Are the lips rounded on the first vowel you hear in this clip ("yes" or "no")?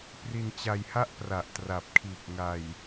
no